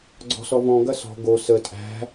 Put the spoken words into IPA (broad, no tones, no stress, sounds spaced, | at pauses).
ɡ͡ǀ ɔ̤ s ɔ v ɔ̃ ɡ ɐ s ɔ̤ ɡ o s ə tʼ æ̤